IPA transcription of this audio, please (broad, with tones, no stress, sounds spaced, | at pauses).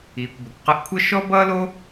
iː˩ kʷ b ə˩ kʷ q ə˧ ʔ kʷʰ ʌ˥ ʃ ɔ˥ b ʌː˥ l o˥